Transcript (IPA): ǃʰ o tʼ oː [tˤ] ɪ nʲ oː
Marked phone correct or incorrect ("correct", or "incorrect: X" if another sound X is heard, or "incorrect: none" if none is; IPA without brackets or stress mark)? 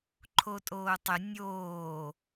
correct